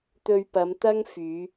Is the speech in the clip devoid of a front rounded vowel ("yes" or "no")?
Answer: no